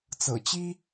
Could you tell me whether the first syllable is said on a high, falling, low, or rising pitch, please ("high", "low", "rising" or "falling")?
low